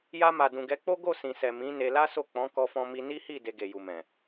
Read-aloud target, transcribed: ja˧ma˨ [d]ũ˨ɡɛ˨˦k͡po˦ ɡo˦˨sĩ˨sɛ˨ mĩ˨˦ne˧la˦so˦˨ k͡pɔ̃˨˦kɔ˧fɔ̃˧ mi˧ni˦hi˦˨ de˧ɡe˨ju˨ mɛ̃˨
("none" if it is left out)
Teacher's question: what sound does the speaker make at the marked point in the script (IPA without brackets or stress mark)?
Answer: d